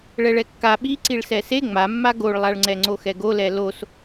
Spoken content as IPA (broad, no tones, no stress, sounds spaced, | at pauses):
ɭ ɛ ɭ ɛ kː a ɓ i ǀ i ɭ s ɛ s e ŋ͡m a mː a ɡ o ɭ lˠ a ɭ ŋ͡ǀ ɛ ŋ͡ǀ o x ɛ ɡ o l ɛ l o s